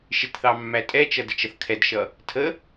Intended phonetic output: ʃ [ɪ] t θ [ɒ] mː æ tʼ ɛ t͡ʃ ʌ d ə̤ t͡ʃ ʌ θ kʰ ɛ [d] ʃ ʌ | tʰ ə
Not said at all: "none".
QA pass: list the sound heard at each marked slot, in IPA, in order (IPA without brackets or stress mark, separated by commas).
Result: ɪ, ɑ, d